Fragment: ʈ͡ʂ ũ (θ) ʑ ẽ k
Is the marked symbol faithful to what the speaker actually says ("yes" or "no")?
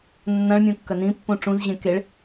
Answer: no